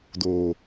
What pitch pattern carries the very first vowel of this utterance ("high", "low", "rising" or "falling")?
low